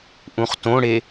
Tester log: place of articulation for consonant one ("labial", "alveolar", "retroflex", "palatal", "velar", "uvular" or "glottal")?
glottal